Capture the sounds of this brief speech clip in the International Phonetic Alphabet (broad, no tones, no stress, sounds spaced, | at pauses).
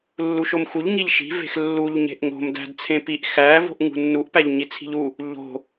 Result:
lː u ʃ o m x u ʎ ŋ i ʎ ʃ i̤ v e̤ x lː u ʎ ɲ e̤ ʔ ŋ o̤ m d æ̤ d t͡sʰ ẽ p i ʔ x æ v o̤ ʔ ŋ ṳ nː u ʔ p æ ʎ ɲ i t͡sʰ i̤ ʎ u | ʎ o̤